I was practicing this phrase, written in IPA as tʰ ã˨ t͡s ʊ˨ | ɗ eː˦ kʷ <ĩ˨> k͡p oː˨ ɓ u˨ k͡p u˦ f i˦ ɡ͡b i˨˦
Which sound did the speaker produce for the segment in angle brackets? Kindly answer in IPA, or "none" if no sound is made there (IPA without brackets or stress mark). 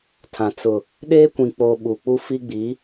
ĩ˨